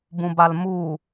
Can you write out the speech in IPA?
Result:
bũbalmu

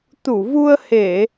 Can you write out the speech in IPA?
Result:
t̪u˧˩vu˧ə̯he˧˩˨

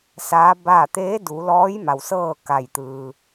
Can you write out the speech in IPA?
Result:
saː˧˥baː˥˨ t̪eː˧˥du˩˧lɔː˧˥j ma˩wsɤː˥˨ ka˧˩jt̪ɯː˩

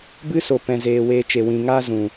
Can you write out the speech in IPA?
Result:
bɨ˦so˨pɛ̃˨ zeː˨weː˧t͡ʃe˨wĩ˨ ŋaː˦ zũ˨

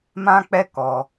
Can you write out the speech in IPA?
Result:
mã˦k͡pɛ˦ kɔ˧

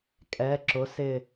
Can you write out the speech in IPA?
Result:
kʼɛ˩˧ǁʊ˩˧ sɪ˧˩

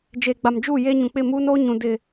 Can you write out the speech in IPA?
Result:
d͡ʒeː˨ɡ͡ba˨md͡ʒuː˦˨ jeː˦ɲũ˨ k͡pɪ˦˨muː˦no˦ ɲũ˨ dɪ˨

